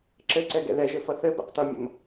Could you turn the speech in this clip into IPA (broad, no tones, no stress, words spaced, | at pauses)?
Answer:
ǁɘ ǀɛɡɛ̰ðɛʒɘ fʌθɘ bɛ̰qtʌmʲə̰m